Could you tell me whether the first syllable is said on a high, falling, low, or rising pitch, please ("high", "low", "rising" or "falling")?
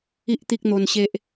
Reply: high